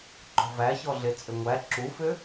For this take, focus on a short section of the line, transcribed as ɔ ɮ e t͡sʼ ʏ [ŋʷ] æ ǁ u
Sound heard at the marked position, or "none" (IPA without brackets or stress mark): ŋʷ